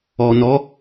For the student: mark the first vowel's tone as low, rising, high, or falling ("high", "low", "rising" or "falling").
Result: low